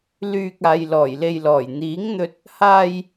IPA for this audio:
l yː˨ k̚ aː˨ j l ɔː˨˩ j l e˨ j l ɔː˨˩ j n̪ iː˨˥ ŋ n̪ ɵ˧ t̚ | h aː˧ j

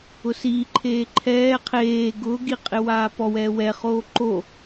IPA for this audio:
ʊ s i ǃʰ eː ǃʰ ɛː qʰ eː ɡ ʊː ɡ i qʼ ɪ w aː p ɔ w ɛː w ɛ χ oː ǃ o

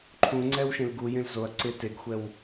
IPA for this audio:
ǃʰ ũ ŋ͡ǀ ɛ w ʃ ẽ l ɡ u j ẽ l z o ɐ̯ ǀ ɪ t e ɡ xʷ ɛ w

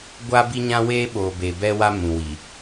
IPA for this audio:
ɡʷ aː˦ b i˦ ɲ ã˦ w eː˦ ɓ oː˨ b e˨ b ɛ˦ w a˦ m ũ˨ w i˨

